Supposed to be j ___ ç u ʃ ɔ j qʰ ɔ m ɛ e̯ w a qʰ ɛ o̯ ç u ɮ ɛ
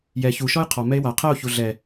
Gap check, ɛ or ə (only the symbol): ɛ